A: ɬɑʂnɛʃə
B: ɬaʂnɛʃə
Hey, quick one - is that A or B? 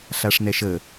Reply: B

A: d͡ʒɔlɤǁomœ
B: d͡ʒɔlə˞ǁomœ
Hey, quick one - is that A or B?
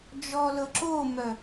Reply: A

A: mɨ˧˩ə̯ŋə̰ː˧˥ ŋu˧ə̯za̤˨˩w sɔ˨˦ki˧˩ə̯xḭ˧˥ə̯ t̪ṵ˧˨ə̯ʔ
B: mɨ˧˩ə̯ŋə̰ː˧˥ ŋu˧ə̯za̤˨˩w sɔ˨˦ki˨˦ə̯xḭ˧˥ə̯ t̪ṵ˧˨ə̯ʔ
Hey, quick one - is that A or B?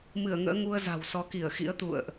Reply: A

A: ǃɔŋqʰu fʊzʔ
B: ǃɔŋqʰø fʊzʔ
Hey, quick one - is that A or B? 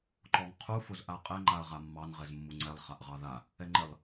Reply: A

